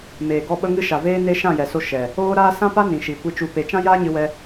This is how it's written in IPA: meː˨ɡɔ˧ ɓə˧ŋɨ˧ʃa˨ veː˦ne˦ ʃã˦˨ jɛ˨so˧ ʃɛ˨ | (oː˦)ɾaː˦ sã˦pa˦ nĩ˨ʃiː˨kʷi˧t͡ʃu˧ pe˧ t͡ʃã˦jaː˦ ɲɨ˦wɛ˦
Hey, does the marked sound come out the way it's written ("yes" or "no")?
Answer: yes